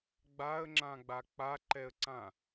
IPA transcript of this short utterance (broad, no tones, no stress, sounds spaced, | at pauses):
ɡ͡b a ə̯ ŋ͡ǁ ã ɡ͡b a k͡p a ǃ ɛ ə̯ ǀ ã